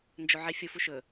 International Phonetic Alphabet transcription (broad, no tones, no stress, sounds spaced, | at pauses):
n d͡ʒ o ʕ i fʲ u f u ʃ ɵ